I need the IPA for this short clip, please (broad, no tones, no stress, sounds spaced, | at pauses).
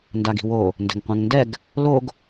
n d a ɡ i̤ w o | n d ɛ̤ ŋ qʷ ɛ̃ ŋ n d ɛ ɡ | l o ɡ